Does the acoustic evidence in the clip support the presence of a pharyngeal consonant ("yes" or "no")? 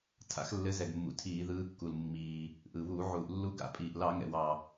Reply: yes